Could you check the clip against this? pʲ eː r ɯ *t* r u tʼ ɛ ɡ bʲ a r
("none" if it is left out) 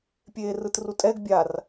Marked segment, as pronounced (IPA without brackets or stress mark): t